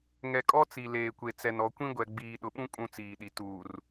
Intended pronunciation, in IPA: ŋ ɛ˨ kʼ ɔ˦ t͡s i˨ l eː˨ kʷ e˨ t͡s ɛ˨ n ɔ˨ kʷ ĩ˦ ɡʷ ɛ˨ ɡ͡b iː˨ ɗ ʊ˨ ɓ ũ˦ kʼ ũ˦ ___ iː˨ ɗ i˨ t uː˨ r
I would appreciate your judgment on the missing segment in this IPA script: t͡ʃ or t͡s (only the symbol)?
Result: t͡s